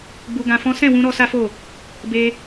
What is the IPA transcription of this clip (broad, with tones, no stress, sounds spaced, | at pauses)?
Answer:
ɡ͡b u˧ ɡ ã˧ f ɔ̃˦ s ɛ̃˦˨ w ũ˧ ɾ ɔ˧ s a˦ f o˦˨ | b e˦